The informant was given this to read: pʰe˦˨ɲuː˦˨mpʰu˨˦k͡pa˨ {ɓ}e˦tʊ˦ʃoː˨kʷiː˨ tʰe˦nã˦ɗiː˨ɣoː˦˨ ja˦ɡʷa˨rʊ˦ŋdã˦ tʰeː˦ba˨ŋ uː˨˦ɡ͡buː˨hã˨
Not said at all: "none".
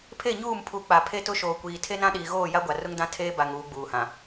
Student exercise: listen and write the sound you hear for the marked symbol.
pʰ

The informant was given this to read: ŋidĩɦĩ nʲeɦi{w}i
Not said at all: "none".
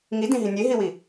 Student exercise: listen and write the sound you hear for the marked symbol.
w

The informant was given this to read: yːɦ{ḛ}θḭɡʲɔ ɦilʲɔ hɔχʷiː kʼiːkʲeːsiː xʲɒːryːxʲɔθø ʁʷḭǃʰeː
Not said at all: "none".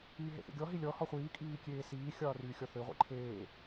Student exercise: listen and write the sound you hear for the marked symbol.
ḛ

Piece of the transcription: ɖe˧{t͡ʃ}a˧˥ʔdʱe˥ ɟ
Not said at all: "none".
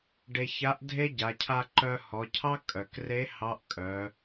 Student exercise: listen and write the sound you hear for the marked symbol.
ç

